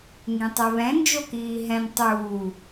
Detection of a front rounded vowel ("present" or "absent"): absent